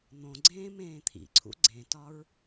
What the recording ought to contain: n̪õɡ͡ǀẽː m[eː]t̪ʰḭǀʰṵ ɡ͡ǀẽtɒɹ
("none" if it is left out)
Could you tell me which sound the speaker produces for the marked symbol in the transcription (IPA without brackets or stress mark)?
ẽː